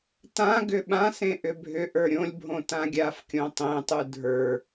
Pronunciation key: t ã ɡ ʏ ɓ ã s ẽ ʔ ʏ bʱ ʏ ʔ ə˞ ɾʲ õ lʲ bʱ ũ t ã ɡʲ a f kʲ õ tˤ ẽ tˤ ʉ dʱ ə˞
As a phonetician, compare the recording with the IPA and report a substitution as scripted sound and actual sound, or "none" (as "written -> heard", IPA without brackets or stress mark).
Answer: ũ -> õ